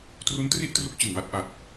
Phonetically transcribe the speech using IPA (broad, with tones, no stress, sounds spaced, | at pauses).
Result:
t r u˦˥ n t r i˥˩ ʔ t r u˦˥ k̚ t͡ɕ ɯ˨˩ ŋ w a˥˩ t̚ ʔ a˨˩ t̚